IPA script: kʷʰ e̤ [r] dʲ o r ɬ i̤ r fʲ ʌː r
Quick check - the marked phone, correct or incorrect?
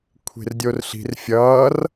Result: correct